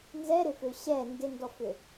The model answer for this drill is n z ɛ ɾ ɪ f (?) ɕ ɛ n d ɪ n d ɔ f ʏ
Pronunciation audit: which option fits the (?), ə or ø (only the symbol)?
ø